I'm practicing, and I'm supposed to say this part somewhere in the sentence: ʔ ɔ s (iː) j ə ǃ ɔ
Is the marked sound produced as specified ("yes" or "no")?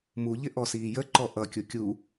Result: yes